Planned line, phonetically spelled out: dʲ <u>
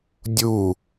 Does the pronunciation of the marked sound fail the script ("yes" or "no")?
no